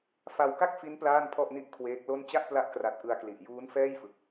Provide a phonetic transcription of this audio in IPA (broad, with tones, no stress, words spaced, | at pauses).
fa˧wka˥˩k̚fi˦˥n plaː˥˩npʰɔ˥˩ʔni˥˩ʔ kʰweː˦˥k̚lo˥˩n t͡ɕa˥˩ʔpla˦˥ʔkra˨˩t̚ ʔɯ˧a̯kli˨˩ʔ juː˦˥n fɛː˥˩jfɯ˨˩k̚